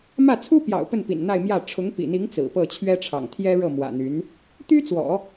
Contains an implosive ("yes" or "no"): no